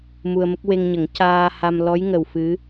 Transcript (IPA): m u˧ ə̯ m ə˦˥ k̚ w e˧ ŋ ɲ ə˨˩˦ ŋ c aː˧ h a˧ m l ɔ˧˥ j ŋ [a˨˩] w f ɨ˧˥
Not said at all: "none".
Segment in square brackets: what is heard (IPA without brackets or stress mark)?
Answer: ə˨˩